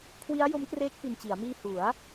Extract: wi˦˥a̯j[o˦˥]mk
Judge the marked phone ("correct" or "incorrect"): correct